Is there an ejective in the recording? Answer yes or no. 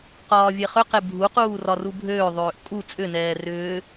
yes